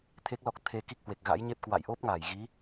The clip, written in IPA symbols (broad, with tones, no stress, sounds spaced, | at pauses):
t̪ʰ e˦˥ k̚ l ɔ˦˥ k̚ t̪ʰ e˧ k i˦˥ k̚ h w e˨˩ k̚ ɣ a̰˧˥ j ɲ e˦˥ p̚ k w a̰˧˨ j ʔ o˦˥ p̚ ŋ a˧˩ j ɣ i˨˦